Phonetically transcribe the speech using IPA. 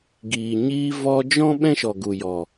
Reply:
ɡ iː˨ ɲ iː˧ v ɔ˧ d͡ʒ ɔ̃˦ ɓ ɛ̃˦ ʃ ɔ˨ ɡ u˨ j ɔ˨

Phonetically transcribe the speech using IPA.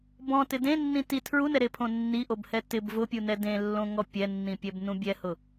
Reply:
b ɔ̃ t ɪ d ẽ nː ĩ t i tʰ ɹ u n ɛ ɾ e pʰ õ nː i ʔ o b h ɛ t ɪ b v ʊ pʲ u n ɛ d ẽ lː õ ŋ ɔ pʲ ɛ nː ĩ pʲ ɛ b n ũ bʲ ɛ h ʊ

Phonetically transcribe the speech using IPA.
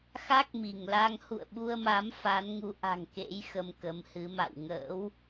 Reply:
x a˦˥ k̚ m i˧˩ ŋ l a˧ ŋ h ṵ˧˨ ə̯ ɓ u˧ ə̯ m a˨˦ m f a˨˦ n ŋ u˨˦ ʔ a̤˨˩ ŋ k ḛ˧˥ j x ə˧ m k ə˨˦ m h ɨ˨˦ m a̰˧˨ w ŋ ə̰ː˧˥ w

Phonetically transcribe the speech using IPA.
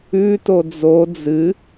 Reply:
ʉ t o d͡z o d͡z ɨ

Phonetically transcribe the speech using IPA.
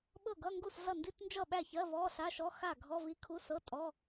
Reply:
ɓ ɤ˥˩ ɡ ʌ˧˥˧ ŋ ɡ u˥˩ s ɮ ʌ˥˩ n d i˧˥˧ t n d͡ʒ ʌ˥˩ ɓ æ˥˩ ç ɜ˧˥˧ v ɔ˧˥˧ ɬ a˧˥˧ ʃ ɔ˧˥˧ x a˥˩ ɡʱ ɔ˧˥˧ v i˧˥˧ kʰ u˧˥˧ s ɤ˧˥˧ tʼ ɔ˧˥˧

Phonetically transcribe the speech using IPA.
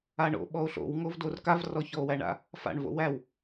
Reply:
a ɳ o̰ ɓ ɔ o̯ ɬ o̰ w ŋ o v d o r k a v r ɔ ç ɔ o̯ w æ ɳ a̰ | f a̰ ɳ v o̰ w æ w

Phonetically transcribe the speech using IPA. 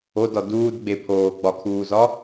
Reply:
o d ɒ d uː d ɡ͡b e pʰ oː ɡ͡b ɒ kʰ uː z ɒ

